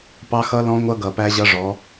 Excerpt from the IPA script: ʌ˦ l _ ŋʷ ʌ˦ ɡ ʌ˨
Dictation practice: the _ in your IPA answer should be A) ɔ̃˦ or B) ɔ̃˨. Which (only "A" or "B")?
A